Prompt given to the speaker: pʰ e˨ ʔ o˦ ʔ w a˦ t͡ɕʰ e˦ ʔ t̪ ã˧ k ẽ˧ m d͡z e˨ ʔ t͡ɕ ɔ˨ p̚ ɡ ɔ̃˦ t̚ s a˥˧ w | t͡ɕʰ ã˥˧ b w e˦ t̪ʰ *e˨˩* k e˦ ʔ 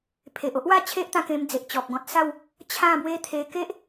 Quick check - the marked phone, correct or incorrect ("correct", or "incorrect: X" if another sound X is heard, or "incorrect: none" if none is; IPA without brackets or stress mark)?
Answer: incorrect: e˧